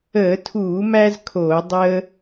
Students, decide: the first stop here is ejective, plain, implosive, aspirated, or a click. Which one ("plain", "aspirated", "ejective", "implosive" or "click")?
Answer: aspirated